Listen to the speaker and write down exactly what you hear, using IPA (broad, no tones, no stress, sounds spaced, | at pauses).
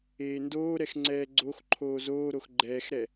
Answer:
eː n d oː ɾ ɛ x ŋ͡ǀ ɛː ɡ͡ǀ o x ǃʰ oː z oː ɾ o x ɡ͡ǃ ɛː x ɾ ɛ